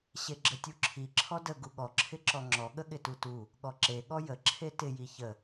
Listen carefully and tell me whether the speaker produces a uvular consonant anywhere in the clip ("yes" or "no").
no